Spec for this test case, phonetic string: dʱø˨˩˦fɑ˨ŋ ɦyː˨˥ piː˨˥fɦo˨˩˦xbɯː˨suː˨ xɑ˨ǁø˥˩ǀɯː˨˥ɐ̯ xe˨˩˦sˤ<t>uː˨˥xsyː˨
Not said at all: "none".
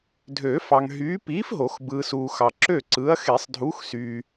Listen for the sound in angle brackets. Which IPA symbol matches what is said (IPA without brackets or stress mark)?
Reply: dʱ